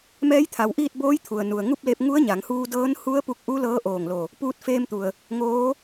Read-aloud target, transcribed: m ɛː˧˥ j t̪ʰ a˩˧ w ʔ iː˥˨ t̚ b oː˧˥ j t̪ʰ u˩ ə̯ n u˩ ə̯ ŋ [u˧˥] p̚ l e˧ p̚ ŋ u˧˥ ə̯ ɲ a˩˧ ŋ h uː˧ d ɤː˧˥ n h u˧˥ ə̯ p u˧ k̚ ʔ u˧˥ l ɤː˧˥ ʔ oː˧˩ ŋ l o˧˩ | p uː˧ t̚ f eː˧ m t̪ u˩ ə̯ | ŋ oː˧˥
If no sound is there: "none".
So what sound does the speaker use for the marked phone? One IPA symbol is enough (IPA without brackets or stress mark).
u˥˨